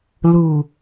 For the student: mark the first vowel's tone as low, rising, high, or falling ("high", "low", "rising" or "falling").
low